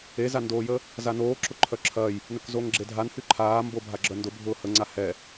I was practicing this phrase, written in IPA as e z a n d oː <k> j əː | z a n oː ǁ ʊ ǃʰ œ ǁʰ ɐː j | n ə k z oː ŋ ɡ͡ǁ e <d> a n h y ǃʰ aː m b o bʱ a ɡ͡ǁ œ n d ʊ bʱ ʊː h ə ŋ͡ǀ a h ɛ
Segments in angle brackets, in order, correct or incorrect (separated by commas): incorrect, incorrect